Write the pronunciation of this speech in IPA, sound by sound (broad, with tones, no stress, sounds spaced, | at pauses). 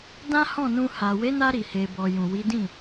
d ã˦ h ɔ̃˦˨ n ũ˧ h a˨ w e˨˦ n a˧ ɾ i˨ h e˨ b ɔ˨ j ũ˨ w i˨˦ d ĩ˦˨